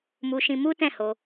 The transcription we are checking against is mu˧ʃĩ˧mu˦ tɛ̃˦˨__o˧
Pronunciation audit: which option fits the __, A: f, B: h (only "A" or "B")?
B